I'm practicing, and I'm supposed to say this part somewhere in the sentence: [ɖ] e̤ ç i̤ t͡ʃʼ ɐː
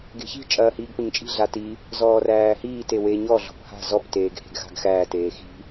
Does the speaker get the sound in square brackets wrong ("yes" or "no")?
yes